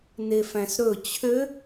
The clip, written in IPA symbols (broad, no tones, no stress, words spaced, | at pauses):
nefæ̃sɾɵ t͡ɕʰø